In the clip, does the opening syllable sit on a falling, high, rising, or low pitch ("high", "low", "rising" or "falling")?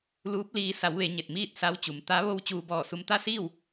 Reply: rising